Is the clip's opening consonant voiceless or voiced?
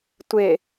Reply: voiceless